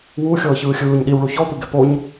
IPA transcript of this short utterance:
w u xʲ ɤː ç ɯː xʲ ɯː ɲ ɗ i w ɭ u ç ɔ p ɯ ɡ ɛ p o ɲ

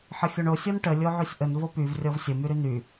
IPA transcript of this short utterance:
ħ ə xʲ o ɳ o sʲ ɔ n ʈ ə lʲ o ʕ y sʲ ʔ ə n v o p y v rʲ ɔ v sʲ ə m y ɾ y n y

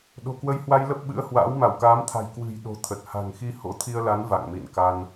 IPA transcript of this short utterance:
ɗ o̤˨˩ k w ə˧ j h w a˧ j l ə˦˥ p̚ ɓ ɨ̰˧˥ ə̯ h w a̰ː˧˥ w m a˧˩ w k aː˨˦ m t̪ʰ a̤˨˩ j k w ɨ̤˨˩ j ɗ o̤˨˩ t̪ʰ ə˨˩ t̚ h a̤˨˩ ŋ x i˧ h o̰˧˥ t̪ʰ i˧ ə̯ l a˨˦ n v a̰˧˨ ŋ m ḭ˧˨ n k a˧ n

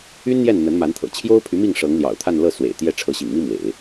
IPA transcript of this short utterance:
y˥ n n̪ j ɛ˥˩ n n̪ ə˧˥ n m a˧˥ n t̪ʰ ɤ̰˨˩ t͡ɕʰ j o˥ ʊ̯ pʰ y˧˥ m i˥˩ ŋ ʂ ɤ˧˥ ŋ l j ɑ̰˨˩ ʊ̯ t̪ʰ a˥˧ n l ɤ˥˩ s w ḛ˨˩ ɪ̯ t̪ j ɛ˥˩ ʈ͡ʂʰ ɤ˧˥ ɕ ḭ˨˩ ŋ m i˥ m w ḛ˨˩˦ ɪ̯

